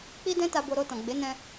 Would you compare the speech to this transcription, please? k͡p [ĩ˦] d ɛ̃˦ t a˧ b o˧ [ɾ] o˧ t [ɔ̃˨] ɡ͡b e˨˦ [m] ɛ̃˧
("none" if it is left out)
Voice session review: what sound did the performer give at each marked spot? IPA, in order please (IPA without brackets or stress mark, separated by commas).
i˦, ɾ, ɔ̃˨, n